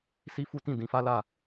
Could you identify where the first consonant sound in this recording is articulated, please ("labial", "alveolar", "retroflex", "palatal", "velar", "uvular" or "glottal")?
alveolar